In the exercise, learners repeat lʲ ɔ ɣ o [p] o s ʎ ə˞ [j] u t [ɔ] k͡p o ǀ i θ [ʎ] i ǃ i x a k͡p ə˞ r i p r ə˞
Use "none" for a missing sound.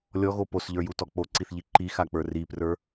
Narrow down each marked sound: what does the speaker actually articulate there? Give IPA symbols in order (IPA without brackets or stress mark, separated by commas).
p, j, ɔ, ʎ